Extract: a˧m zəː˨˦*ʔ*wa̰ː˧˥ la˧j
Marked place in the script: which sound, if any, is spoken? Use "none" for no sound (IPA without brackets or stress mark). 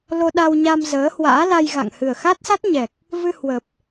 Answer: h